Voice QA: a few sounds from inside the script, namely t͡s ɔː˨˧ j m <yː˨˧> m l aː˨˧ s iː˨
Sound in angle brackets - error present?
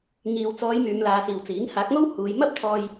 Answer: no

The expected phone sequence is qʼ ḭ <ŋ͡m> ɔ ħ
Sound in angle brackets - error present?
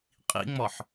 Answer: no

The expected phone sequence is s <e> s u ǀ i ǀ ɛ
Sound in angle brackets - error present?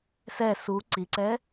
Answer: yes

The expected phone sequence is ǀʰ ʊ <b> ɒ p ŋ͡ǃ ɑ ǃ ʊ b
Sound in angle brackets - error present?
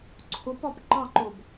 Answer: yes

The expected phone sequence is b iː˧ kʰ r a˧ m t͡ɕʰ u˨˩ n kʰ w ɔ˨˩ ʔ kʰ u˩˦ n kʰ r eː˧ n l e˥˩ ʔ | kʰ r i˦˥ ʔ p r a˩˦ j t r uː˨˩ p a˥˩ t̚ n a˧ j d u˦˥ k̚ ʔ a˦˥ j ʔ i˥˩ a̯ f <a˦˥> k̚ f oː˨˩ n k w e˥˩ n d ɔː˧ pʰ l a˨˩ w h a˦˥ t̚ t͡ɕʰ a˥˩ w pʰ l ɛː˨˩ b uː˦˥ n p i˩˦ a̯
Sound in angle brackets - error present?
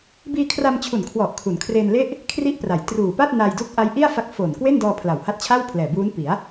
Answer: no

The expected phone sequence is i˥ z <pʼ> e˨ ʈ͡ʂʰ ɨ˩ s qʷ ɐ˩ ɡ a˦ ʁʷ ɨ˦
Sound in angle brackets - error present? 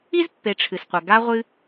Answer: yes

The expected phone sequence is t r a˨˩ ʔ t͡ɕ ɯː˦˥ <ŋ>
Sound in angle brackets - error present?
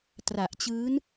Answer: yes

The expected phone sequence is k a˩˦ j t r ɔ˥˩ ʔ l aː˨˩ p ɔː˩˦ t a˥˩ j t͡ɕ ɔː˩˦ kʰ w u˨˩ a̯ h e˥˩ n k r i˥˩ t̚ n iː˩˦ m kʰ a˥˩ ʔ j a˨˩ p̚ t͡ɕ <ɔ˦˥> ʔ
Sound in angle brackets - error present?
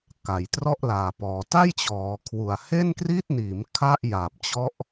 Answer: no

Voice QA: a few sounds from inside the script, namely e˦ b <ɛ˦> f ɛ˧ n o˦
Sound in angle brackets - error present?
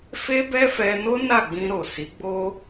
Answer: no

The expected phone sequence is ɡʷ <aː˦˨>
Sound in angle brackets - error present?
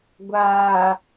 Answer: yes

